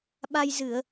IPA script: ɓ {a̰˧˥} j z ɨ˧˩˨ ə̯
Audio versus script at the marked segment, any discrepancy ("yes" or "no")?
yes